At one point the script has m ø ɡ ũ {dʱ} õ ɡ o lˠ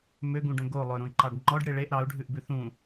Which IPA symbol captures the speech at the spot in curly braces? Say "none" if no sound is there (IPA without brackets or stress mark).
ɖ